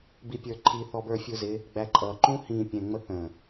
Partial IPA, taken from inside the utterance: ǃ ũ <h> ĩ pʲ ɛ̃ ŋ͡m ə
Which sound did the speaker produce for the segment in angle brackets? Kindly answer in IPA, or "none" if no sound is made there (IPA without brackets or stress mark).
h